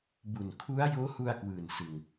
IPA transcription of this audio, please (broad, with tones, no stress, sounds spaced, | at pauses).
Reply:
b u˨˩ n kʰ u˦˥ a̯ j oː˦˥ h u˧ a̯ k w ɯː˨˩ n s ɯ˧ ŋ